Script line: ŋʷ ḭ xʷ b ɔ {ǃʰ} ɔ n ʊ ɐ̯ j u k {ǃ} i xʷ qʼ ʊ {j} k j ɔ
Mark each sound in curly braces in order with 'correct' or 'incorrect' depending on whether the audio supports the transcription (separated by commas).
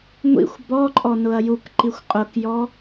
incorrect, correct, incorrect